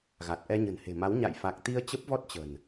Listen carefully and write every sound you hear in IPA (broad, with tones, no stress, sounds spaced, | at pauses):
ɣ a˨˩ t̚ ʔ ɛ˧ ɲ ə̤˨˩ n h e̤˨˩ m a˨˦ w ɲ a̰˧˨ j f a˨˩ k̚ t̪ i˧ ə̯ t͡ɕ ə˦˥ p̚ v ɔ˦˥ t̚ t͡ɕ ə̤˨˩ n